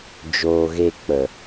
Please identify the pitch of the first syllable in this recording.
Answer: low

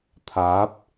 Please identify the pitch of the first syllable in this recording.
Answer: rising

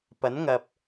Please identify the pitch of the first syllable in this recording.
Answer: rising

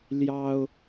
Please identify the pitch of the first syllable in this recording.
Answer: high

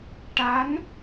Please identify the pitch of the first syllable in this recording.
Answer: rising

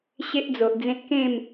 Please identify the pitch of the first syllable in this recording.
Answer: high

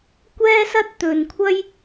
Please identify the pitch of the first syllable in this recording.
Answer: high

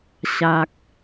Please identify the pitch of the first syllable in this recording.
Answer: low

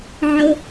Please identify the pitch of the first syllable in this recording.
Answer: high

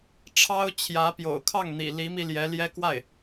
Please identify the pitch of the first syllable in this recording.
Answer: high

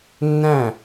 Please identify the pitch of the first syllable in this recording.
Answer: falling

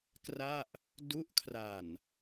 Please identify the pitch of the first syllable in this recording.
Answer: falling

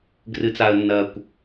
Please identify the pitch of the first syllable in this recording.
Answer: low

